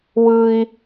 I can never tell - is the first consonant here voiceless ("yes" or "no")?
no